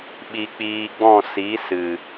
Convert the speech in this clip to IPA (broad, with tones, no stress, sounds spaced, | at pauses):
ɓ i˧ k͡p iː˧ ɡ͡b ɔ̃˦˨ s i˨˦ s ɨ˨